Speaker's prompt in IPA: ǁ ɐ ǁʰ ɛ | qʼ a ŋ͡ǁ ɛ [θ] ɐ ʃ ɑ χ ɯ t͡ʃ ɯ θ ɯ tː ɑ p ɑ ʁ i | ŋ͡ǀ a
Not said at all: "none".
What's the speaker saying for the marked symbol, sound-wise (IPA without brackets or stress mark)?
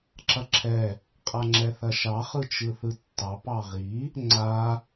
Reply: θ